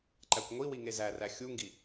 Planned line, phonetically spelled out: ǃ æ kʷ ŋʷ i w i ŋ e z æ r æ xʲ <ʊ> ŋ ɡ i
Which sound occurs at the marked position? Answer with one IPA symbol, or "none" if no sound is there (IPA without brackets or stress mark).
u